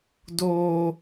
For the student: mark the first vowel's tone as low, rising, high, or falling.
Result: high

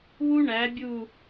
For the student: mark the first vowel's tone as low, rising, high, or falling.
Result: high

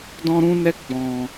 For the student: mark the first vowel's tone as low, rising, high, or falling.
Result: high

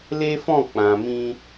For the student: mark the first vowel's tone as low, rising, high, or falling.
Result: high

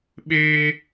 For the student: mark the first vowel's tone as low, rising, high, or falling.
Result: high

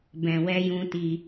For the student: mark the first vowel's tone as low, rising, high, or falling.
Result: low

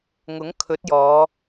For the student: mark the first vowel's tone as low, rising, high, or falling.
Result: rising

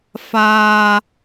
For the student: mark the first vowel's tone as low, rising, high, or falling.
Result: low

